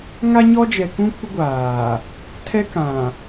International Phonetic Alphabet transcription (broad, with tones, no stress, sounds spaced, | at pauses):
ŋ a˦ ɲ ɔ˦ d͡ʒ ɛ˨ k ũ˦ kʷ ɪ˦ ɡʷ aː˨ | tʰ ɛ˦ k ã˨